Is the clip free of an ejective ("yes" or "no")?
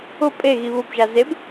no